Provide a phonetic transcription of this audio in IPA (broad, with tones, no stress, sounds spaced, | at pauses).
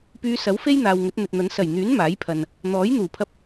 p yː˧ s ɐ˨˥ w f e˥ j n̪ aː˨ w ŋ ɵ˨˥ t̚ n̪ ɵ˨ t̚ n̪ ɐ˨˥ n s ɐ˨˩ j n̪ yː˨˥ n m aː˨˥ j pʰ ɐ˨ n | n̪ ɔː˨˥ j n̪ uː˨˩ pʰ ɐ˧ p̚